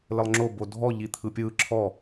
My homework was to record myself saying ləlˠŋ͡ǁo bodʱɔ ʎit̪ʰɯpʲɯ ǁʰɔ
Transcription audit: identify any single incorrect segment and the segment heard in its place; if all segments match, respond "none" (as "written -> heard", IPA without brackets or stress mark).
none